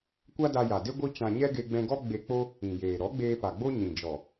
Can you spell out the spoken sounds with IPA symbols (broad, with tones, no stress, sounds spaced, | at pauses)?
kʷ a˦ d a˧ j a˨ d e˦ ɡʷ i˦ t͡ʃ ã˧ ɲ ɛ˦ ɡ e˧ ɡ͡b ɛ̃˧ ɡ ɔ˦ ɡ͡b e˧ k͡p o˦ | ĩ˨ j eː˨ ɾ ɔ˨˦ ɡ͡b eː˧ p a˨ ɡ͡b o˦ ɲ ĩ˨ d͡ʒ ɔ˨